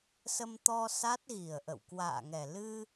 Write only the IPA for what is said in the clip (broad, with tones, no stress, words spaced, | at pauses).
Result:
sə˧mt̪ɔ˧ sa˦˥t̚ɣi˨˩ə̯ʔə̰˧˨w kwa̰ː˧˨ŋɛ˨˩lɨ˧